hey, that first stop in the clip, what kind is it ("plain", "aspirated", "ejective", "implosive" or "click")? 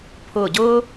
aspirated